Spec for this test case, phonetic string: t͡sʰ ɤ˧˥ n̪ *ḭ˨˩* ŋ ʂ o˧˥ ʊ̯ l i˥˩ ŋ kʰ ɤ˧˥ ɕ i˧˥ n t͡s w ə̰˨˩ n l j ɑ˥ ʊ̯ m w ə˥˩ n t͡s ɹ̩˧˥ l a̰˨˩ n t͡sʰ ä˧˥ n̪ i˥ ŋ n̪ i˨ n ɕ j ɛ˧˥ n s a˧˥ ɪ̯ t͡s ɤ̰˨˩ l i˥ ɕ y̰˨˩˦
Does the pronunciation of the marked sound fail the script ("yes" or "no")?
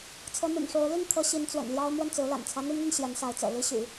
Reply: no